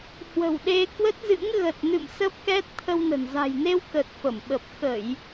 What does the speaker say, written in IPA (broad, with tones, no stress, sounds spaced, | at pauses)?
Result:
h w ə̤˨˩ w ɗ e˧ k w ə˦˥ t̚ z ɨ̰˧˥ ŋ ɣ ə˨˩ t̚ n ɨ̰˧˨ m s ə˦˥ p̚ k ɛ˦˥ t̚ t̪ʰ ə˧ w n ə̤˨˩ n z a̤˨˩ j n e˧ w k ə˨˩ t̚ f ə˧˩ m ɓ ə˨˩ p̚ x ə˧˩˨ j